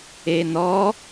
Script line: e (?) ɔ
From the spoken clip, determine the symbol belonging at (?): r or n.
n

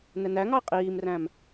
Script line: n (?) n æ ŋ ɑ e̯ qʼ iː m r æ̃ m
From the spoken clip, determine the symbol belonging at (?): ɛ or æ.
ɛ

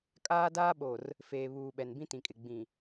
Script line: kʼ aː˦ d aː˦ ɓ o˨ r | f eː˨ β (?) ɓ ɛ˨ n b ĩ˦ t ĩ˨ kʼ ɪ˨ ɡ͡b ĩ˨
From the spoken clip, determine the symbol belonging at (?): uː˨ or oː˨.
uː˨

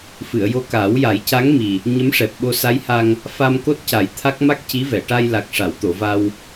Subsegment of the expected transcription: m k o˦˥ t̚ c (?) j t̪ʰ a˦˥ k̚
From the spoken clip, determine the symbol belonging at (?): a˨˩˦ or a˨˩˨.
a˨˩˦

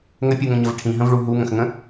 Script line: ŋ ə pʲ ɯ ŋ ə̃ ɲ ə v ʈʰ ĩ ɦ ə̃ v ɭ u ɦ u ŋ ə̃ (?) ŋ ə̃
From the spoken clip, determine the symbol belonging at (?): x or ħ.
x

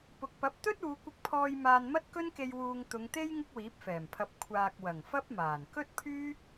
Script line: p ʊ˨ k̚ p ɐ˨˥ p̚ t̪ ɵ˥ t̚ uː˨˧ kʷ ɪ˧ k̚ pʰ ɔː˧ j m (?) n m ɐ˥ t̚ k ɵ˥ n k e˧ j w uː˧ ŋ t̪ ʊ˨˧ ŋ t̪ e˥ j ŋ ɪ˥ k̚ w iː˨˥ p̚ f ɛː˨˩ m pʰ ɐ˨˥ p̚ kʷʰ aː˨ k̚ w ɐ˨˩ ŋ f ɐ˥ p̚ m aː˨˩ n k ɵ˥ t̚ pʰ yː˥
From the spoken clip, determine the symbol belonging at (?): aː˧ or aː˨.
aː˧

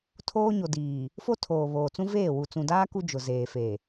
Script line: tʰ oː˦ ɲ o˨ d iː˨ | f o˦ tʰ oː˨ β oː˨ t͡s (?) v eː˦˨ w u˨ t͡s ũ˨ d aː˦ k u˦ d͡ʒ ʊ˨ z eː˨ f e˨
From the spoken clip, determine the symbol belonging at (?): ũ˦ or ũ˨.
ũ˦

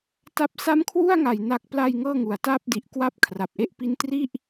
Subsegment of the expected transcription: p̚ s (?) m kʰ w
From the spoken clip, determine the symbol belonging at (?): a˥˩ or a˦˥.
a˦˥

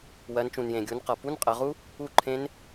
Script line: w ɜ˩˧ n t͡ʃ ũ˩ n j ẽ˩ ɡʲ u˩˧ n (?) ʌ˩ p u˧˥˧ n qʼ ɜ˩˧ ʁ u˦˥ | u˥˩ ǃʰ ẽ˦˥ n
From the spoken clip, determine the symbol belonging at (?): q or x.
q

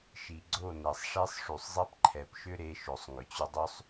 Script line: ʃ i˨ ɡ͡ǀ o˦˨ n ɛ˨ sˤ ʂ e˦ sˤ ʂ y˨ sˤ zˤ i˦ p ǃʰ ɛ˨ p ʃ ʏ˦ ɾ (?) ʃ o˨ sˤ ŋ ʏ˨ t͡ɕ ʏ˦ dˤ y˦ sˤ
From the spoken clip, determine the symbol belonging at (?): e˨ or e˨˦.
e˨˦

